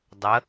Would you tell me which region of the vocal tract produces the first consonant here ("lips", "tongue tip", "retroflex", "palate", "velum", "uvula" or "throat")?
tongue tip